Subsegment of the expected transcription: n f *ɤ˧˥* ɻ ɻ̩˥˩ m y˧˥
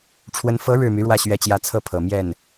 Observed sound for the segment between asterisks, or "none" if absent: ɤ˧˥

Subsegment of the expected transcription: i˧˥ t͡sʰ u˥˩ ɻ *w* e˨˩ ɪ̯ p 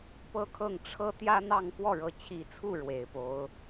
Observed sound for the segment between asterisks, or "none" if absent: w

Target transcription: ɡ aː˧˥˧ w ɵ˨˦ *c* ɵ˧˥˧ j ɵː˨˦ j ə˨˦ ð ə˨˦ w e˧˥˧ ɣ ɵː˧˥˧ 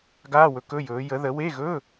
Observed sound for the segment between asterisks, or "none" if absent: k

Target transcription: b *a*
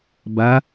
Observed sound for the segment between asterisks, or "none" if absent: a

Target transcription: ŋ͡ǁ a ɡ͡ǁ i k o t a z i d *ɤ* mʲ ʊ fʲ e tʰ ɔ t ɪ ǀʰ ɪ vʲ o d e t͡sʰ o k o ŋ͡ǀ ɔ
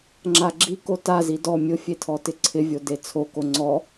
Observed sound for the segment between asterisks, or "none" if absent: ɔ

